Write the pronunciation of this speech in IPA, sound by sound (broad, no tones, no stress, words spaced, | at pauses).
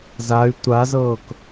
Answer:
zay̯ tʷazɤːk